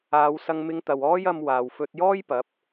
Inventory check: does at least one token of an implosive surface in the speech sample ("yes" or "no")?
no